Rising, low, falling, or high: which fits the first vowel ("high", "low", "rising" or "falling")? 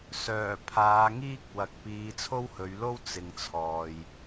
low